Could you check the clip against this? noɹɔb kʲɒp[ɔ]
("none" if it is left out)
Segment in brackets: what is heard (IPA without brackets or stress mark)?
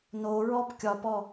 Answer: ɔ